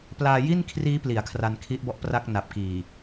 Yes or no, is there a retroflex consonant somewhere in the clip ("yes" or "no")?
no